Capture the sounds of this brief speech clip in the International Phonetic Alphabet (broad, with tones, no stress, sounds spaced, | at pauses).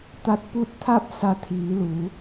t̪ a˧˥ t̚ p u˥˨ t̚ t̪ʰ a˥˨ p̚ s a˧ t̪ʰ iː˩˧ l u˩˧